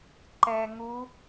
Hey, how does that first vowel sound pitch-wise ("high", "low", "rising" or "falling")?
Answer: low